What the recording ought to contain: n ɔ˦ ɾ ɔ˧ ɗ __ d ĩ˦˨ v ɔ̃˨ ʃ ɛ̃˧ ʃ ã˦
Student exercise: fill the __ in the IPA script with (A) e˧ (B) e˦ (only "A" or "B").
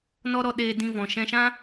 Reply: A